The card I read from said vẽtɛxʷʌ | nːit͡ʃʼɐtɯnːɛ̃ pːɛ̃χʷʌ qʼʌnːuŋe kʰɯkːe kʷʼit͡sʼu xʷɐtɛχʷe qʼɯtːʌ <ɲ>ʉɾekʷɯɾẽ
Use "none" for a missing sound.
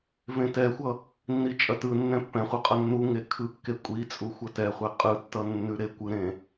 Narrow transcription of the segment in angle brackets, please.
nː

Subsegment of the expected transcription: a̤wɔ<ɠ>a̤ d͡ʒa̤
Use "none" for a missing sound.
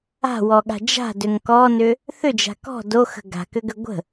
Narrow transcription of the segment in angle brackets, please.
ɠ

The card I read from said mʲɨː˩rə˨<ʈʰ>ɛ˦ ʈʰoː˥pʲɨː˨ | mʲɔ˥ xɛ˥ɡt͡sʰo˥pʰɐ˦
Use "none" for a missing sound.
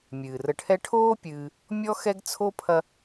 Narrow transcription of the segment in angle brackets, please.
ʈʰ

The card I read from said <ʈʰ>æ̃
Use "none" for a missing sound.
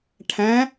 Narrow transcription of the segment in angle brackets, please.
ʈʰ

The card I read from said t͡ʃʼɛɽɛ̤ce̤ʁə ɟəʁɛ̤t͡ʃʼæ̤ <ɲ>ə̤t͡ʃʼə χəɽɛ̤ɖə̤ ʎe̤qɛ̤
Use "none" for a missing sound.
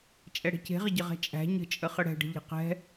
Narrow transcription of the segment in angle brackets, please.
ɲ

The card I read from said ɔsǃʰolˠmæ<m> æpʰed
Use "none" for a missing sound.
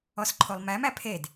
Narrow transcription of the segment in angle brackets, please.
m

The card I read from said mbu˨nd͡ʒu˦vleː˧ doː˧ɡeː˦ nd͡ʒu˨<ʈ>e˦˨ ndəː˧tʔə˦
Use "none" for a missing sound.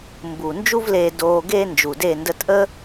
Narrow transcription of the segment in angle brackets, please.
d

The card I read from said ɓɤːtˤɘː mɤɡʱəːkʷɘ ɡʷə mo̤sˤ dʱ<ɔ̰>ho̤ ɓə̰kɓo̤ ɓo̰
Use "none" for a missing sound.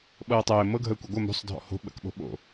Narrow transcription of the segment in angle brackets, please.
ɔ̰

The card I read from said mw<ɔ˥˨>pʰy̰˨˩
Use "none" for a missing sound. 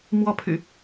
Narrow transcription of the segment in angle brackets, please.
ɔ˥˨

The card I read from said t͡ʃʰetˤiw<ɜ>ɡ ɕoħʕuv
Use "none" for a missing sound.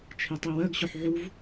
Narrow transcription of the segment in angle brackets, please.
ɜ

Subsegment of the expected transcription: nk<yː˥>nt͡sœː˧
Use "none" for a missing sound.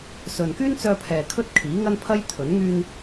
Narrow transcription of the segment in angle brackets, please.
yː˥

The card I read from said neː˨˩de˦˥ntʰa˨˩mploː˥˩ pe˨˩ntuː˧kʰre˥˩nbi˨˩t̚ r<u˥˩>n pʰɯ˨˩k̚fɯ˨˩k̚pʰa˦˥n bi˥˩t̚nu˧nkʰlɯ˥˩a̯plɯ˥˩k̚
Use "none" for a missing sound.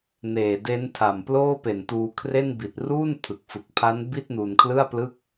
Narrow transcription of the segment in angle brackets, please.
uː˥˩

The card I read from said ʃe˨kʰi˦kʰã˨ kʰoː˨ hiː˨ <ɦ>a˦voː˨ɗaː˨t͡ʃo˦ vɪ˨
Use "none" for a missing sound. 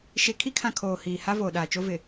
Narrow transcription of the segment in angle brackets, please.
h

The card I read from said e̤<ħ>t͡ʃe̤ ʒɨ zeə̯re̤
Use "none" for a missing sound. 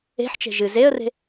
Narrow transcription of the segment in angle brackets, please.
ħ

